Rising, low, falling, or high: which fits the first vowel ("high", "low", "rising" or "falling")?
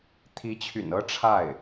rising